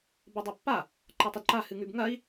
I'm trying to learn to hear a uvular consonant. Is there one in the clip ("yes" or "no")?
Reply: no